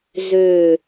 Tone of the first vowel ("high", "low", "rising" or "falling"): low